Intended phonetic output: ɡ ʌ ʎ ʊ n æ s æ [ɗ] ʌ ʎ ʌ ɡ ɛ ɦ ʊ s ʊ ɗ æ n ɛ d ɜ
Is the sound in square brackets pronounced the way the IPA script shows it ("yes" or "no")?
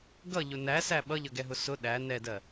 no